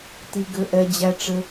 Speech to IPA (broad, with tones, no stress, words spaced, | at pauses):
ti˧ɡɘ˧ʔɛ˧ d͡ʑæ˦ʈ͡ʂɘ˦